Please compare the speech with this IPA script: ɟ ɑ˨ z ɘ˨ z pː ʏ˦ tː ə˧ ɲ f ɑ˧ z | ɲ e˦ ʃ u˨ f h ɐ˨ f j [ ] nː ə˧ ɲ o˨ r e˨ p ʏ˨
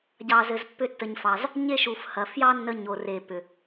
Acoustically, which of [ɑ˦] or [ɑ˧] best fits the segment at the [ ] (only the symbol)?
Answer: ɑ˦